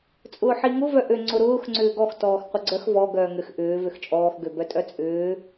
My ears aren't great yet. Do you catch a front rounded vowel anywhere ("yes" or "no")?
yes